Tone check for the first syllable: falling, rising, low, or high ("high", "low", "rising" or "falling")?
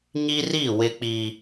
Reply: high